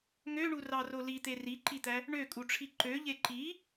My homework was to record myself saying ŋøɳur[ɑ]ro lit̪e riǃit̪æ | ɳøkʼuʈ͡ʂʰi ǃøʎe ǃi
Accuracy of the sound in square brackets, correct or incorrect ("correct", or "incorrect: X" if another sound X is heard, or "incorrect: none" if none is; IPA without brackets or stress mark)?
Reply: correct